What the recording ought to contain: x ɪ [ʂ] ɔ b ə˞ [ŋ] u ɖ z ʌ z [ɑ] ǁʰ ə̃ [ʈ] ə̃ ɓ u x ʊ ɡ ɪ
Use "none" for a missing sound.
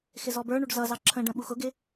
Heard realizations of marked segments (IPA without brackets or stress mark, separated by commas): z, ɳ, ɑ, ɖ